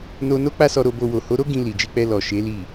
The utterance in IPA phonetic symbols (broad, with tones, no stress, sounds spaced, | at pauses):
n o˧ n o˦ k͡p a˦ s ɔ˧ ɾ o˧ b o˧ w o˨ h o˨˦ ɾ o˦ ɡ ĩ˧ l i˨ d͡ʒ i˧ k͡p ɛ˧ l ɔ˨ ʃ e˨˦ l i˦˨